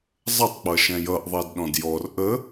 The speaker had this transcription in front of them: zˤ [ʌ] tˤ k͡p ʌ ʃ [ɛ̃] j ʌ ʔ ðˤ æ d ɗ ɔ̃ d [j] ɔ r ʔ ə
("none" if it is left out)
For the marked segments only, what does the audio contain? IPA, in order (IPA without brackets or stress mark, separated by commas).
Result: ə, ɛ̃, j